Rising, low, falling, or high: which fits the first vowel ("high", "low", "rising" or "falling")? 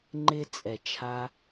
high